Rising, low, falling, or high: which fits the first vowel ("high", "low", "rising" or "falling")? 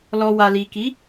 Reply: low